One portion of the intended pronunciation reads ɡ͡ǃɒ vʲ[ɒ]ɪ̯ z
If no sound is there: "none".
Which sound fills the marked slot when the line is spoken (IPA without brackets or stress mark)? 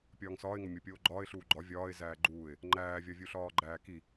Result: ɒː